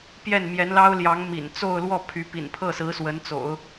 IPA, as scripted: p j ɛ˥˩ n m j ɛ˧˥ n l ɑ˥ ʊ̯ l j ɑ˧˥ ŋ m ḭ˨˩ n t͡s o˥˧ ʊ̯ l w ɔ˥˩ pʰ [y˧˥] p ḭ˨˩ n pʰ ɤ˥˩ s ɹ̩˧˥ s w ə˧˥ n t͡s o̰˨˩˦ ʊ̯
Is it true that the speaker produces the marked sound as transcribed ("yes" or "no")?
yes